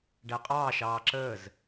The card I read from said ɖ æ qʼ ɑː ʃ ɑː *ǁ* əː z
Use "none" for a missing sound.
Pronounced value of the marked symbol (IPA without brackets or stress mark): ǁ